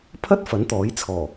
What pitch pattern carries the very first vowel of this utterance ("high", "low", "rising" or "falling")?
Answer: high